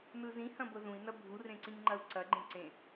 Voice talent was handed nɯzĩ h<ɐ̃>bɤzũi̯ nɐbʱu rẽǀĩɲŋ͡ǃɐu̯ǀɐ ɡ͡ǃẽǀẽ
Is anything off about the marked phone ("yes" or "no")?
no